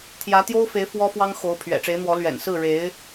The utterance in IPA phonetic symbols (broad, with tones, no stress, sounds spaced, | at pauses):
t̪ʰ j ä˧˥ t̪ j o˥ ʊ̯ f e˧˥ ɪ̯ f w ɔ˥ f w ɑ˥ ŋ x o˧˥ ʊ̯ pʰ ɥ ɛ̰˨˩ ʈ͡ʂ e˧˥ ɪ̯ n̪ w ɔ˧˥ l ɥ ɛ̰˨˩ n s ɹ̩˥˩ ɻ e˧˥ ɪ̯